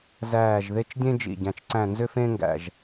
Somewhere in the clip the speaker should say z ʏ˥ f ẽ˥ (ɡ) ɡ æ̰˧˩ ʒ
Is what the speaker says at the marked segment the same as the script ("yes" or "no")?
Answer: no